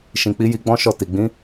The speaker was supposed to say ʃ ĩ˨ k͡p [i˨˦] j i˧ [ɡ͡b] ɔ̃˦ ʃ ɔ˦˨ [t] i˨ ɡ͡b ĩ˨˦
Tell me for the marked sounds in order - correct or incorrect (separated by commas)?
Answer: correct, correct, correct